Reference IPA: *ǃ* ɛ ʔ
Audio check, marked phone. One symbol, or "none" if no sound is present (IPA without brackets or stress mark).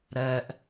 ɾ